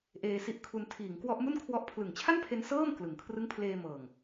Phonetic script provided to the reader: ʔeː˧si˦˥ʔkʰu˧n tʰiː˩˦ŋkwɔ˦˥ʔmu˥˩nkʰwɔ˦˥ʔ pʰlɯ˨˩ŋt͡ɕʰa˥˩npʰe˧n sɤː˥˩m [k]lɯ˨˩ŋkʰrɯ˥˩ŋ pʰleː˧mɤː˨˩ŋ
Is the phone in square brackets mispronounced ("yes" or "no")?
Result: no